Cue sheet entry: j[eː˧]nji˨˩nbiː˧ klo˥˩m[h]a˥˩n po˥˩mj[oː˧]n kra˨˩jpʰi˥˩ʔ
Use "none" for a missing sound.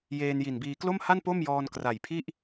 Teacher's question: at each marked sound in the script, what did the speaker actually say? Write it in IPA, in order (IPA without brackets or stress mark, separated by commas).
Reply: eː˧, h, ɔː˧